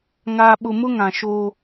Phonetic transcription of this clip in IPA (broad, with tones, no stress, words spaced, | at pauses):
ŋaː˨ɓʊ˨mʊ˦ ŋã˨ʃoː˦